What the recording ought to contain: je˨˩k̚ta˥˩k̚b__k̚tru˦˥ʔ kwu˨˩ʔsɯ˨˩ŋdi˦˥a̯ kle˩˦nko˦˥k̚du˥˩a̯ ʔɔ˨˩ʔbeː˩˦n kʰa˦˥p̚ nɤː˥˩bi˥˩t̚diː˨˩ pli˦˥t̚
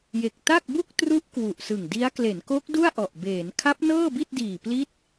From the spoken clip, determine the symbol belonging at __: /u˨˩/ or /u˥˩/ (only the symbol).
u˥˩